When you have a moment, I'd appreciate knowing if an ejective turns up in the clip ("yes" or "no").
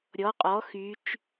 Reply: yes